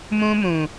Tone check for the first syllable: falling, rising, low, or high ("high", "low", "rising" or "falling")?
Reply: high